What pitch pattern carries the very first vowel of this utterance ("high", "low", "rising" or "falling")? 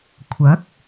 rising